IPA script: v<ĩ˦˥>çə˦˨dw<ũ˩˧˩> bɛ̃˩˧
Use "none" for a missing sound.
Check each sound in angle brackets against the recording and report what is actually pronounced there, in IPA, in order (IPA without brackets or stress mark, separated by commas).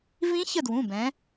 ĩ˦˥, ũ˩˧˩